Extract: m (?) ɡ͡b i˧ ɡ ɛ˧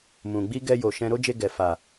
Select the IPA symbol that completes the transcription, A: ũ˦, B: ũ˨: B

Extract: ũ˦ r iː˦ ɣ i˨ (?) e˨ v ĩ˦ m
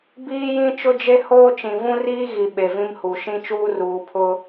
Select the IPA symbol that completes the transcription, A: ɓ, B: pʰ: A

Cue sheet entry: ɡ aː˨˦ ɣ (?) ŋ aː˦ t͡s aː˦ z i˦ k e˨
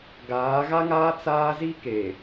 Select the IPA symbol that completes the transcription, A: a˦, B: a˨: A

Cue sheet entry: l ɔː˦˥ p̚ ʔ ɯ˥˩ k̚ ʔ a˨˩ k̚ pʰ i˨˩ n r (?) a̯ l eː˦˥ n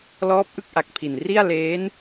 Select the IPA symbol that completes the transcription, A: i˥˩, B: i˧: A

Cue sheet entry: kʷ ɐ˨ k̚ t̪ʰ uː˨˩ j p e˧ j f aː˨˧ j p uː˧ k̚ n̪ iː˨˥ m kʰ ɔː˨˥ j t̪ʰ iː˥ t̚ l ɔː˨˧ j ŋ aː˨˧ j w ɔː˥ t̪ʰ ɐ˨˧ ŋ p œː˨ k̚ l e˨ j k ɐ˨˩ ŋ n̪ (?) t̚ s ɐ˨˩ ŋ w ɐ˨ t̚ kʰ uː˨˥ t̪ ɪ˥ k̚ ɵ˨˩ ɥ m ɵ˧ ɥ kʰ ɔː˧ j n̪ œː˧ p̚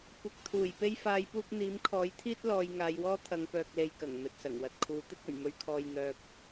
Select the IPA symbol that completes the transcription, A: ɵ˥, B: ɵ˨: B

